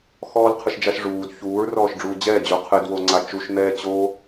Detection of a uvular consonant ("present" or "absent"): present